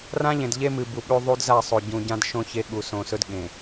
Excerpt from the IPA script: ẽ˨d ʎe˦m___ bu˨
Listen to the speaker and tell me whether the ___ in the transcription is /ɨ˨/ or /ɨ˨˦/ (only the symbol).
ɨ˨